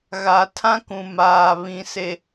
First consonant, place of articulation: velar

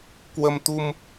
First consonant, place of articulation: velar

